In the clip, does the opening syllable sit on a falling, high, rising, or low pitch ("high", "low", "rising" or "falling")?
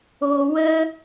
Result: low